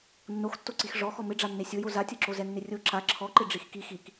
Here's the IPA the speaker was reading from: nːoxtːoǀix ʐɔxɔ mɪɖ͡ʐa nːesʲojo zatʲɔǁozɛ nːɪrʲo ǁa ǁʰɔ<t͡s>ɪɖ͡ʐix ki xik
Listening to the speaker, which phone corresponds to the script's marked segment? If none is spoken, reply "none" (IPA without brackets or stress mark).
ǃ